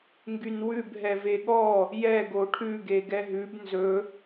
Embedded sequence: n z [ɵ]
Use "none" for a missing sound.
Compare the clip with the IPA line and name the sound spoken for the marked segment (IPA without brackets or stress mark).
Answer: ɵ